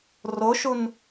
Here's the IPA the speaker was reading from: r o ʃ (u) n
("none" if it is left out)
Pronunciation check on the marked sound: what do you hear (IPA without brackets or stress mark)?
u